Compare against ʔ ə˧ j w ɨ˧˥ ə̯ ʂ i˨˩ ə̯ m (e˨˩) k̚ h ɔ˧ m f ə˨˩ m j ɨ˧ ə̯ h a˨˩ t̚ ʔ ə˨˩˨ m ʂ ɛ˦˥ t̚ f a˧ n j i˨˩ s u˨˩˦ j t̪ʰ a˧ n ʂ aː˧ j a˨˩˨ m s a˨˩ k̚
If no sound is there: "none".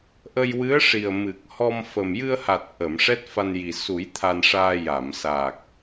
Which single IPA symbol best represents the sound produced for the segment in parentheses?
ɨ˨˩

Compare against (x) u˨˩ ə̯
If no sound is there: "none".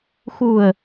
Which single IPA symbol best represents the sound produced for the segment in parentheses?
x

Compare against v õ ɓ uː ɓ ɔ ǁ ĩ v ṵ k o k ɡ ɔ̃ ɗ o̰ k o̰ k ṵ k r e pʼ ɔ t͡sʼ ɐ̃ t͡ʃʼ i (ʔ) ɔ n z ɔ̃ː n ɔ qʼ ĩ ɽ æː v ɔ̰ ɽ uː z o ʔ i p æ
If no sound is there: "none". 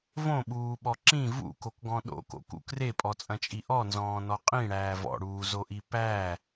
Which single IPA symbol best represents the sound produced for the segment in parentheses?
ʔ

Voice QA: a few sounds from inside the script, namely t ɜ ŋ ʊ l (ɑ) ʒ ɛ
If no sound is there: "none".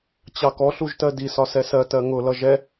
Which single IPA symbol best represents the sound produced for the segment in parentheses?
ʌ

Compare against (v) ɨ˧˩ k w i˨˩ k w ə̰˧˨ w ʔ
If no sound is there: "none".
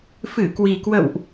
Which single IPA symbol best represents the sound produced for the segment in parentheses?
f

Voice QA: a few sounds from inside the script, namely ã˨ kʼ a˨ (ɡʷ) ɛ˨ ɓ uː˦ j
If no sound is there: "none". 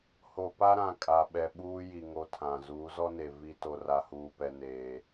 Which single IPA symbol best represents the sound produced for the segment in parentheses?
ɓ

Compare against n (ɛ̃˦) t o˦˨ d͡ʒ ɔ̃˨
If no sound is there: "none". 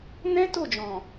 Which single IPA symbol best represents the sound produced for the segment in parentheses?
ɛ̃˦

